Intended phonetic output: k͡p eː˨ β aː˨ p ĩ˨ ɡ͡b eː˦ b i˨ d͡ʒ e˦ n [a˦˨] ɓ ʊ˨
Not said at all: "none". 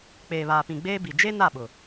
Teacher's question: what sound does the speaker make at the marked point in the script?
a˦˨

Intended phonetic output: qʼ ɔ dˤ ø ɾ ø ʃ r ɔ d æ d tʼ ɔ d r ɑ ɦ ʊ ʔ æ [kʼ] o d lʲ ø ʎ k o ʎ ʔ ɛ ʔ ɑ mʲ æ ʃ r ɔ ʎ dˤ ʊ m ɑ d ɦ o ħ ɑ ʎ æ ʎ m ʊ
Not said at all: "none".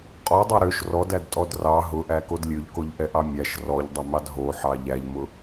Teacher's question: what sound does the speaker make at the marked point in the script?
k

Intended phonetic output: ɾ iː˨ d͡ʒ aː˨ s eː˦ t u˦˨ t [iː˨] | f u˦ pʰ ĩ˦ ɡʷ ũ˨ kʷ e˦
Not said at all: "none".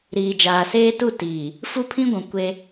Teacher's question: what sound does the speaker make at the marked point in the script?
iː˨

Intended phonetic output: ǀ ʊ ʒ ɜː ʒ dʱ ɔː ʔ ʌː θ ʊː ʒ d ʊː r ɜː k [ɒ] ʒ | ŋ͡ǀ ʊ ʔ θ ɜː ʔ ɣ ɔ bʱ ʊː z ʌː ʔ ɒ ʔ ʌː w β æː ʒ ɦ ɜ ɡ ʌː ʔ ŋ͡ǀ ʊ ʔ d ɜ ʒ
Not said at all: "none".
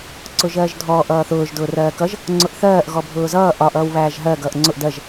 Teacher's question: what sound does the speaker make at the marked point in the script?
ʌ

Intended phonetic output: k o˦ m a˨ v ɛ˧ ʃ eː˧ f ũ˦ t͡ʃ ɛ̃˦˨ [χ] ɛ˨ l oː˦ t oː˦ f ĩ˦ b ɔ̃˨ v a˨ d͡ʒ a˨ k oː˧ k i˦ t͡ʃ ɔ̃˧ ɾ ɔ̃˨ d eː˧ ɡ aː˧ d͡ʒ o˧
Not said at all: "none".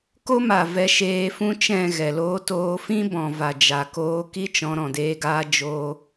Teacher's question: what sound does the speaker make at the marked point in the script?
ɣ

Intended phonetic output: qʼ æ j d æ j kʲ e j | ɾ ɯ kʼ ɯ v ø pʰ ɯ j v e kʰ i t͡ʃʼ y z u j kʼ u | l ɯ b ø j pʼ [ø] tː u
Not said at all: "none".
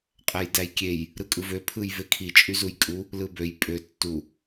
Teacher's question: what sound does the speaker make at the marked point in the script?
ø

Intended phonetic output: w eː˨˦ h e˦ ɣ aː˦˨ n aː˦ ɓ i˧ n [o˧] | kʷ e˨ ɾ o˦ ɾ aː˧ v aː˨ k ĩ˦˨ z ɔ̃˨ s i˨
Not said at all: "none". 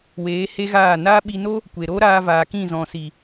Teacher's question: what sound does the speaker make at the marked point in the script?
o˦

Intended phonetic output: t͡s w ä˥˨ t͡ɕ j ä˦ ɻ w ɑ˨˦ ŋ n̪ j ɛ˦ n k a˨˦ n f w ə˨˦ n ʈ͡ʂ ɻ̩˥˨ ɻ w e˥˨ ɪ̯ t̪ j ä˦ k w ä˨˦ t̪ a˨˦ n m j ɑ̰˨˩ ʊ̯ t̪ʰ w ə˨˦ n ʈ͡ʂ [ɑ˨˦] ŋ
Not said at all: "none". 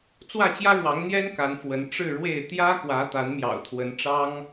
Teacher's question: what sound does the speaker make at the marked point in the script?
ɑ˦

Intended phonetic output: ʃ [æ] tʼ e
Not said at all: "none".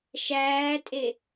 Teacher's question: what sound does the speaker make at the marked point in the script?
æː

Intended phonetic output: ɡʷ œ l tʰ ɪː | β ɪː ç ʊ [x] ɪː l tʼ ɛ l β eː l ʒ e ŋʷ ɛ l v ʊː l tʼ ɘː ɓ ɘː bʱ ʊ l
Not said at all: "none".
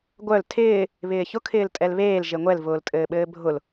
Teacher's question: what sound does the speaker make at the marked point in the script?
kʰ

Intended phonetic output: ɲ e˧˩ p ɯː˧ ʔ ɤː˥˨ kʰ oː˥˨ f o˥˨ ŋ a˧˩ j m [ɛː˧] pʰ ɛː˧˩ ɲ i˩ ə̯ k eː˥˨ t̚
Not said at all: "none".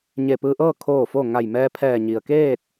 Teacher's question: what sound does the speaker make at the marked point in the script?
ɛː˧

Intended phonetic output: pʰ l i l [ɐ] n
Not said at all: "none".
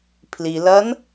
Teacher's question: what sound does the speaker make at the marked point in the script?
ɐ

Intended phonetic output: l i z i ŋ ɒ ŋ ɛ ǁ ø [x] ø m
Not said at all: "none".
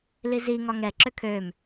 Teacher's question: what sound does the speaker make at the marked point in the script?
kʰ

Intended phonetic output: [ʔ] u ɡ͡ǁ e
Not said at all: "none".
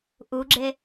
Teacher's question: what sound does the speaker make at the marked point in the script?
ʔ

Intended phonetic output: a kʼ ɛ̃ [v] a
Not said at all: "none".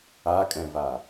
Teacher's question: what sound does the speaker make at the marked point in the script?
v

